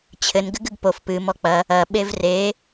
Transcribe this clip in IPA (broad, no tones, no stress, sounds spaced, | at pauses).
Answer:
t͡ɕʰ ɘ n ɡ ɘ ɡ ɘ ɡ p o f p ɨ m ɔ k͡p ɐ | ɐ ɓ e v r e